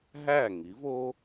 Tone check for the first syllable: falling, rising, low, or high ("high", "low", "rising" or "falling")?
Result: falling